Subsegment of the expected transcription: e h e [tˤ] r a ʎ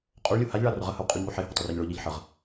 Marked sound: correct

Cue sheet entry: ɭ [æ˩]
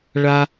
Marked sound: incorrect: a˩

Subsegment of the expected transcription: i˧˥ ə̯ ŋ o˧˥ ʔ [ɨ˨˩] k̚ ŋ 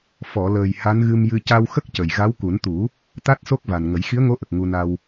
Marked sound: incorrect: ə˨˩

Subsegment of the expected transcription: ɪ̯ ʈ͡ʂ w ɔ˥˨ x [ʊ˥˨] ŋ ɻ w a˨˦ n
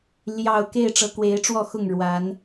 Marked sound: correct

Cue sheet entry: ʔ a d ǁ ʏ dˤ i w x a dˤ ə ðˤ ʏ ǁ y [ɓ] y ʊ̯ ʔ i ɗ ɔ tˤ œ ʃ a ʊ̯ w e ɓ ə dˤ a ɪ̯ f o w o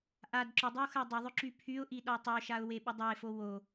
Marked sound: incorrect: pʰ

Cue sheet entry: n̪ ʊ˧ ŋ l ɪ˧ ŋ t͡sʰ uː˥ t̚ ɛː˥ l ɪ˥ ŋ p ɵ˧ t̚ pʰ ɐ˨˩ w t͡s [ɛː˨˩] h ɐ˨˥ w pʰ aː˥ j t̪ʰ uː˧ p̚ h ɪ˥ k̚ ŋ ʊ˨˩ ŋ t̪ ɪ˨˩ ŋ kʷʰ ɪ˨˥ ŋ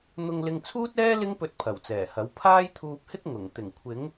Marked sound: correct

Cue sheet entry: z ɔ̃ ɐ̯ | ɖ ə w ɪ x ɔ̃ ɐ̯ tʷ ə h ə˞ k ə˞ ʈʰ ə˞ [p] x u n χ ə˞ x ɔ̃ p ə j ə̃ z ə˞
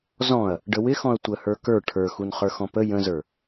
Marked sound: incorrect: none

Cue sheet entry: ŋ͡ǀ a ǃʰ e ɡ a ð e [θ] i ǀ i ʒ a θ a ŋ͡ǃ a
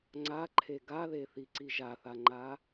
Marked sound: correct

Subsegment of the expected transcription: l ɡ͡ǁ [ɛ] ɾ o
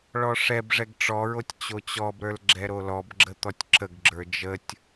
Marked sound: correct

